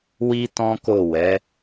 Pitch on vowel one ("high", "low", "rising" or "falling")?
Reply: high